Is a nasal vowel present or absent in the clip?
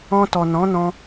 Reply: present